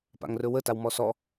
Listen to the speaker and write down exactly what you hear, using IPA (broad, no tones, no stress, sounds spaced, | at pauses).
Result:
p a̰ ŋ r ɵ w ə t a w m ɔ s ɔ